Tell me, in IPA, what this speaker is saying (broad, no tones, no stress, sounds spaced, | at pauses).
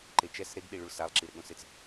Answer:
ǃ e t͡ʃ ɛ s ɾ e ɡ ɗ i ɭ u ɭ s a lˠ ǁ i ɾ ɪ ɠ õ s ɪ t͡s